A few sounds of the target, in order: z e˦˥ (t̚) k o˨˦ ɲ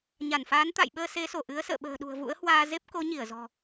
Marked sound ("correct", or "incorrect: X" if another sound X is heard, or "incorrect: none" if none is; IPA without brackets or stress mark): incorrect: p̚